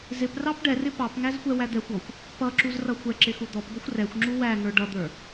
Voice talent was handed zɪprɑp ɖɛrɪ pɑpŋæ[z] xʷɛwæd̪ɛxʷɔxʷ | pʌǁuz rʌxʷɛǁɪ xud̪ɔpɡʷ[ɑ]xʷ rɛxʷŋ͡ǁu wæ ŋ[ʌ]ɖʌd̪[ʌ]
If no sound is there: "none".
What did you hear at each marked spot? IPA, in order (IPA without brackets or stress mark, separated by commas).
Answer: z, ʌ, ə˞, ə˞